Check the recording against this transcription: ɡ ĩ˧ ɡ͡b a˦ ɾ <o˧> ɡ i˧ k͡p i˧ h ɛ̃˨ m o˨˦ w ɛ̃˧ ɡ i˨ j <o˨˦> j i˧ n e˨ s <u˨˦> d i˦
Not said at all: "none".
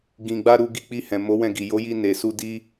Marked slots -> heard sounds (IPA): u˧, o˨˦, u˧

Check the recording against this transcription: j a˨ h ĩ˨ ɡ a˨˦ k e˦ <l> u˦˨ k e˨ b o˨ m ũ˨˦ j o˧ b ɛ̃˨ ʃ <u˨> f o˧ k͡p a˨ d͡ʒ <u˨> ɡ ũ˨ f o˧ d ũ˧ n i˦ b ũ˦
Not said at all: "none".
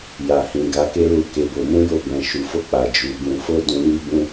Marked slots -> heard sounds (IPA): l, u˨, u˨

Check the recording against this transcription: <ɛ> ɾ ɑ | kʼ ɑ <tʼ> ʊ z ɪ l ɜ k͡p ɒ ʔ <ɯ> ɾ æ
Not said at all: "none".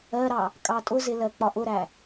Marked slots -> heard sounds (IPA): ɜ, tʼ, ʊ

